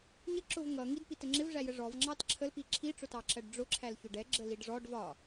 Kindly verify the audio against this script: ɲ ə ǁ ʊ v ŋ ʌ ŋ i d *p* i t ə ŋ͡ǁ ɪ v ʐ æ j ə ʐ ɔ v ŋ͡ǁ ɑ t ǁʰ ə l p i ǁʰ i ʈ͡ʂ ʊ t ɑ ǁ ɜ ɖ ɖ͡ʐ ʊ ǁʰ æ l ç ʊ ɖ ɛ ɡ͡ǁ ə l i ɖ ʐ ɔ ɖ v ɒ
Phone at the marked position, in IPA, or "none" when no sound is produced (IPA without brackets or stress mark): p